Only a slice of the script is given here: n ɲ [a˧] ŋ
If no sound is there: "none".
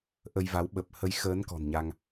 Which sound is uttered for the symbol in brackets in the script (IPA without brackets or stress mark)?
a˧